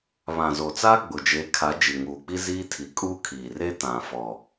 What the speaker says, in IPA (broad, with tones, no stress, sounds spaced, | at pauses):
β ã˨ z o˨ t͡s aː˦ ɡ͡b ʊ˨ d͡ʒ e˨˦ kʰ a˨˦ d͡ʒ i˨ ŋ uː˨ k͡p i˦ z iː˦ tʰ i˨ kʼ uː˦ kʰ iː˨ r e˦ t ã˨ f ɔ˨